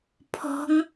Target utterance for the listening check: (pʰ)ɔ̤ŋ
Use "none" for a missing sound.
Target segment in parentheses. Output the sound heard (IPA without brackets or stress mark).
pʰ